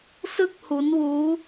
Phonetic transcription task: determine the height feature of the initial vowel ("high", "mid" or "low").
high